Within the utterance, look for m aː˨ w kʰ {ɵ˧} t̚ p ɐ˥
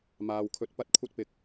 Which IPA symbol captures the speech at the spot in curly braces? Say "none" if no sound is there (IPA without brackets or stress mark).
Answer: ɵ˧